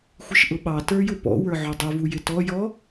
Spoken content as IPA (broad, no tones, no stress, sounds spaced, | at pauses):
xʷ ɪ ʃ ʔ ʊ ɓ ɑ t ə˞ j ʊ p ɔ̰ w ə˞ ʕ ʊ dˤ ʊ v u j ɪ t ɔ j ɔ